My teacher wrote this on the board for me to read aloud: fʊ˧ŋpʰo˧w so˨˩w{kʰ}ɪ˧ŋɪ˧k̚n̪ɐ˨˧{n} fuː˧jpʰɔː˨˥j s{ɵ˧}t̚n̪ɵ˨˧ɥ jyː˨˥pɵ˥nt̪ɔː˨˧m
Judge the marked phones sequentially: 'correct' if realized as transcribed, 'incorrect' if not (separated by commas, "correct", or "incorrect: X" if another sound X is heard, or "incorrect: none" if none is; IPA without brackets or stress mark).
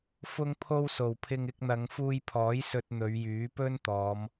incorrect: pʰ, incorrect: ŋ, correct